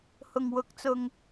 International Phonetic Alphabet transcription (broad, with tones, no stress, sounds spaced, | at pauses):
h ʊ˨˩ ŋ w ʊ˨˥ k̚ t͡s ʊ˨ ŋ